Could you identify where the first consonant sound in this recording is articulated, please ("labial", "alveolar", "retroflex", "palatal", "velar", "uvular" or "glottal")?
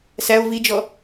alveolar